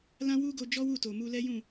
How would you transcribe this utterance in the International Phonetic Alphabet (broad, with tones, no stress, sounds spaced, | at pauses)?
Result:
l ã˦ w u˦ ɡ o˧ d͡ʒ ɔ˦ w u˦˨ t o˨ m u˧ l ɛ˦ j ũ˦˨